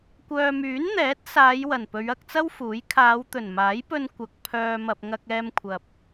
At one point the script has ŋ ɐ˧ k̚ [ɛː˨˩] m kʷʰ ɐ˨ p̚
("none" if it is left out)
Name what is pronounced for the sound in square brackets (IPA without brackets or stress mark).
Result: ɛː˧